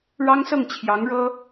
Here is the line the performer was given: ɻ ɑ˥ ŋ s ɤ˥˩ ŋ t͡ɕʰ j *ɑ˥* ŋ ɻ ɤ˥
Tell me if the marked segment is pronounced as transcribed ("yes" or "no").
no